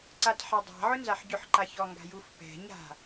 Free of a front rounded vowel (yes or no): yes